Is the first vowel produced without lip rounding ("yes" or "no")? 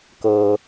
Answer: yes